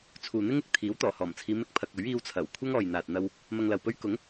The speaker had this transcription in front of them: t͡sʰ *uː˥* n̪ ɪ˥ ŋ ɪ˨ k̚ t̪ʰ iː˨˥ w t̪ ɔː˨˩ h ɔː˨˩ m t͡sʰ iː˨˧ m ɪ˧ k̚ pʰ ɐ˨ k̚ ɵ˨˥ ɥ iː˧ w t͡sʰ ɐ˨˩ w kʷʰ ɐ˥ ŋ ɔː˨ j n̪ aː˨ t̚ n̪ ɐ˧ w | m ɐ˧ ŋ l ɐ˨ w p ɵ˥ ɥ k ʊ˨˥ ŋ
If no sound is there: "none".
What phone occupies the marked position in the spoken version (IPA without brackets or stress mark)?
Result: uː˨